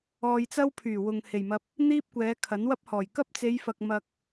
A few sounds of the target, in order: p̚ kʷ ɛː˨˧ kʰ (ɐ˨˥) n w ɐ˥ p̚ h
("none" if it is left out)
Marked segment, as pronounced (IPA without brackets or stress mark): ɐ˨˥